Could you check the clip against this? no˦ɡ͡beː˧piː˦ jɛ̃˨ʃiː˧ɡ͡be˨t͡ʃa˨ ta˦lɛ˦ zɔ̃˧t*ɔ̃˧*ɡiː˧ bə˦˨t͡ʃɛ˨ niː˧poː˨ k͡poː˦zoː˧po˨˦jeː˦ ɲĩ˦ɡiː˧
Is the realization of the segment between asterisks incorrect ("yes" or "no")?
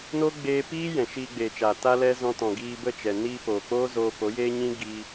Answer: yes